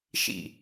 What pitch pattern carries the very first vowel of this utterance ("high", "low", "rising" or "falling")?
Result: falling